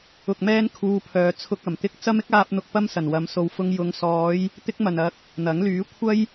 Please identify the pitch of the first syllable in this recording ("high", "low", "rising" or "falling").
low